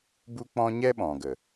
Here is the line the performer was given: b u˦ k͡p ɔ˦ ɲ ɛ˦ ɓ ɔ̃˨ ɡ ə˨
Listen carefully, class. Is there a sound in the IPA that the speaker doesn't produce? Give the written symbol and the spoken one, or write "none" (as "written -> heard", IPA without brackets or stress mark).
ɔ˦ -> ɔ̃˦